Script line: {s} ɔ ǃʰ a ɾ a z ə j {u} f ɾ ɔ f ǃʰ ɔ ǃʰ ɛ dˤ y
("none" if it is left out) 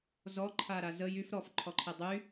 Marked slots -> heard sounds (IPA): z, y

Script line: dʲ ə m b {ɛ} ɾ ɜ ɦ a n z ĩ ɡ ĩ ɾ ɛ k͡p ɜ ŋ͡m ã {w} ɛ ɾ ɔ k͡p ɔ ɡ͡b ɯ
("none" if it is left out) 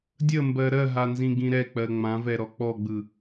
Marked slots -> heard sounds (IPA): ɜ, v

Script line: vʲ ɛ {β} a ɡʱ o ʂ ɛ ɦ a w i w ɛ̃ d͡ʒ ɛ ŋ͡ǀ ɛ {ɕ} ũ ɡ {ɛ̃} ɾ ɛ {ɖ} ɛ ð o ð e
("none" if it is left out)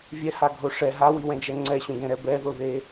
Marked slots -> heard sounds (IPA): h, ɕ, ɛ̃, b

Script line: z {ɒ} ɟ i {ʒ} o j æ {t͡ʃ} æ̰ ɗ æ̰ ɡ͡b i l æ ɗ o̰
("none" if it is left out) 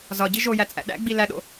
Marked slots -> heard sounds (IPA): ɒ, ʒ, t͡sʼ

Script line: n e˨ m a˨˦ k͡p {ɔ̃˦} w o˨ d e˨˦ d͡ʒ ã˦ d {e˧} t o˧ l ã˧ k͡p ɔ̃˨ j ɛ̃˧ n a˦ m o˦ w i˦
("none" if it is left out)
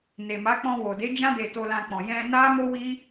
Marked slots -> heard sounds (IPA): ɔ̃˧, e˧

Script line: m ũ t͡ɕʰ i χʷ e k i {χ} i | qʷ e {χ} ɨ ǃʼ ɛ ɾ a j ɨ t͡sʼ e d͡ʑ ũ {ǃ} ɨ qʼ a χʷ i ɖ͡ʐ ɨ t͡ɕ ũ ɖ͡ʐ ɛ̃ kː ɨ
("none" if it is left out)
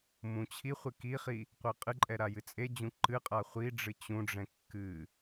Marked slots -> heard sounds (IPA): χ, qʼ, ǃ

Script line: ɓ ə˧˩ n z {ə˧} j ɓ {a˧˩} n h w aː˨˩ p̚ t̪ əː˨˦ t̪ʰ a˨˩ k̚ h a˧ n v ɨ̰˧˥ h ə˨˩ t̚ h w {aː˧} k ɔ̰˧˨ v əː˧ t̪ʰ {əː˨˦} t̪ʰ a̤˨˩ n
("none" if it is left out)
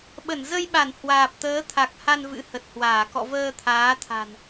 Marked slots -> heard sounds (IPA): ə˧, a˧˩, aː˧˩, aː˨˦

